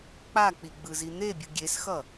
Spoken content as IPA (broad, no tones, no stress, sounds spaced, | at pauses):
k͡p a k͡p i ɡ͡b ɯ z i n̪ e bʲ ɯ ɡʲ e s x ʌ